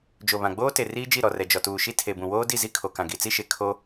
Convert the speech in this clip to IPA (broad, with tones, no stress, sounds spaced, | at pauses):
d͡ʒ o˨ β ã˨ ɡ͡b oː˦ t e˨ r iː˦ d͡ʒ i˦˨ ɾ ɔ˨ r ɛ˨ d͡ʒ ɔ˨ t uː˨ ʃ i˦ tʰ e˨ b ũ˨ w oː˦ d i˦˨ z i˦ kʰ o˨ k ã˨ ɡ i˨ t͡s i˦ ʃ e˨ kʰ o˦